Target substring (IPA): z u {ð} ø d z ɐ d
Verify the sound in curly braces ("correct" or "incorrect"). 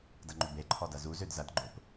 incorrect